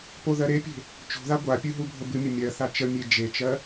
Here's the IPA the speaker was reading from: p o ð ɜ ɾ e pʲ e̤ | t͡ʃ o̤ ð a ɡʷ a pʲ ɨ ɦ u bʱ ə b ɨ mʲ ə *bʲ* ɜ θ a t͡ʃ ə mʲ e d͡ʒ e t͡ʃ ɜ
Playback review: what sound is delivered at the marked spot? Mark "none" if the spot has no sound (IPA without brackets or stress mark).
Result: mʲ